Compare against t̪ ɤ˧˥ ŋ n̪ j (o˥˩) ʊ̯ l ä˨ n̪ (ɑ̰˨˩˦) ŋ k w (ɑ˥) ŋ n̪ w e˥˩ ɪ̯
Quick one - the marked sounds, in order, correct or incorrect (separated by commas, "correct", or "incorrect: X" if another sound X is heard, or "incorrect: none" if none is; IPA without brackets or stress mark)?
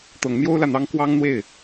incorrect: o˥, incorrect: ɑ˥, correct